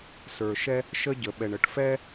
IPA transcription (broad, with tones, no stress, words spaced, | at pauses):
sə˞˩ʃɛ˥ | ʃə˥ɟə˩ ɓɛ˩ɳə˩ʈfɛ˥